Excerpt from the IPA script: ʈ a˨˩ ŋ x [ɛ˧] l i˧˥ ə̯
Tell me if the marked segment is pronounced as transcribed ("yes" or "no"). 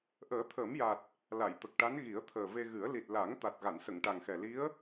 no